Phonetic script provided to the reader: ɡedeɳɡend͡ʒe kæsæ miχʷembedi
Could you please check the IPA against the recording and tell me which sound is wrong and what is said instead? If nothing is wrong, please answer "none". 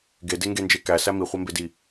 ɳ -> ŋ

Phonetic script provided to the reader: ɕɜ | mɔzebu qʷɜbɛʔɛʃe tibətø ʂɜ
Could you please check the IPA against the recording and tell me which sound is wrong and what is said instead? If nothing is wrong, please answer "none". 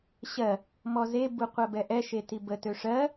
none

